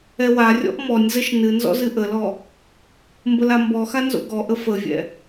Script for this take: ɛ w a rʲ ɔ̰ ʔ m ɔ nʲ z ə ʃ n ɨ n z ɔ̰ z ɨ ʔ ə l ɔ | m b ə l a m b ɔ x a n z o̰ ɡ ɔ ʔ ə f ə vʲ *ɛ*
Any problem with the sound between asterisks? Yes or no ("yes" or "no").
yes